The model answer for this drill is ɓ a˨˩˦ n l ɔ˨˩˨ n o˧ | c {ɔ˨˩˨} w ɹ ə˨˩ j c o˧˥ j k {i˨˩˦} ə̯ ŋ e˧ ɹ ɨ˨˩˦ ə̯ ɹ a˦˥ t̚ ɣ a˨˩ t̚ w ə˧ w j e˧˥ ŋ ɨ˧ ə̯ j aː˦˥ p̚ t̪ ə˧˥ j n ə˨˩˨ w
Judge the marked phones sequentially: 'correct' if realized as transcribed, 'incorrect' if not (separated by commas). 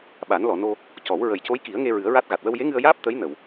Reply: incorrect, correct